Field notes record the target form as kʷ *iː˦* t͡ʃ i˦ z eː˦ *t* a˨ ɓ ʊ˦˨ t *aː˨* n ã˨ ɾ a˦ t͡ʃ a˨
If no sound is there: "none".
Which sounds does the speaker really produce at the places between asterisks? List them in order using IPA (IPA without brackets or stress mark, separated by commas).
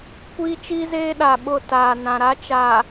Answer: iː˦, ɗ, aː˨